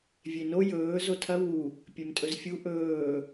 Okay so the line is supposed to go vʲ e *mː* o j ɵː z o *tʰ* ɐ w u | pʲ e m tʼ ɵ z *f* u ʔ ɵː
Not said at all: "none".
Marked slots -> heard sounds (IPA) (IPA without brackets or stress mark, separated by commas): n, tʰ, fʲ